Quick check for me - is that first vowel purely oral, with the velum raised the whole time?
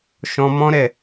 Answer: no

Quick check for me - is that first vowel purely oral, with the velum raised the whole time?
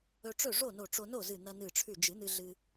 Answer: yes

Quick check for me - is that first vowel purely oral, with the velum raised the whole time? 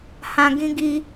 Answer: no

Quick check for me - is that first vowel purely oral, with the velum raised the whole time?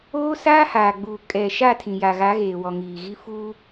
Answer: yes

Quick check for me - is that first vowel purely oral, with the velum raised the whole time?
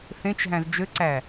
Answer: no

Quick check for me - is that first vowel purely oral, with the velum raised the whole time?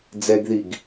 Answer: yes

